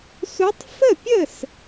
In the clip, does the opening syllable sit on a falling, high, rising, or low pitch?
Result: rising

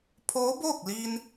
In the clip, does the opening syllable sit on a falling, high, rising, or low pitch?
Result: rising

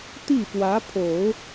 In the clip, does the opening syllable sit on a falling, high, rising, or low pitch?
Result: falling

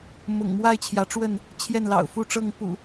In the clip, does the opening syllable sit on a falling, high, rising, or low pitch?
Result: low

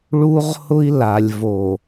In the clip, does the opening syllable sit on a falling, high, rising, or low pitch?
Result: high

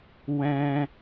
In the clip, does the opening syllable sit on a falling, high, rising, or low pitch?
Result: high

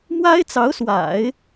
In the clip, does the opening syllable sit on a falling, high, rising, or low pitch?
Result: high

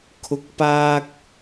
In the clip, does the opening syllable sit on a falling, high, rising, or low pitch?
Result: low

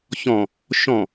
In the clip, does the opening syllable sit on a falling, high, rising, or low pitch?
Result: low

